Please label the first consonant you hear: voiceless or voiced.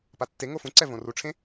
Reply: voiceless